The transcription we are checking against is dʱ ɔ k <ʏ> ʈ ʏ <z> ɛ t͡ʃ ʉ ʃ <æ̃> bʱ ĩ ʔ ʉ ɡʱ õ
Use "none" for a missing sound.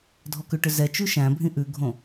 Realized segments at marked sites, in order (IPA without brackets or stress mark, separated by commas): ʏ, z, æ̃